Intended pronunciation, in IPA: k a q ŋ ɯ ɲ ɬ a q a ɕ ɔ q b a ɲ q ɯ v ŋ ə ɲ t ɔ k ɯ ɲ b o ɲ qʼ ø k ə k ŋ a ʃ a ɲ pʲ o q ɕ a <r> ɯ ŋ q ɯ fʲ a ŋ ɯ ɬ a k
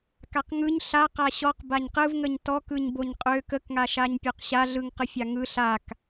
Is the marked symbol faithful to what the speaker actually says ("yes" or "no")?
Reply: no